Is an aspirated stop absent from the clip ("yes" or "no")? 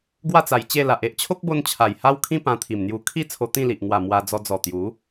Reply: no